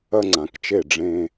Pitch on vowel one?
high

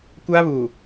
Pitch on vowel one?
high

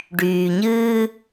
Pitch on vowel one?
low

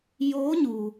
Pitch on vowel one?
rising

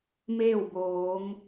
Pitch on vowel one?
falling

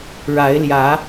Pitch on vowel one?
rising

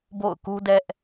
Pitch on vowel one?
falling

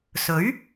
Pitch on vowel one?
rising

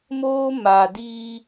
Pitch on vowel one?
high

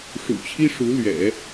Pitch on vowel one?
low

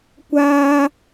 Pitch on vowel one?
high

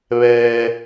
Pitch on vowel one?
low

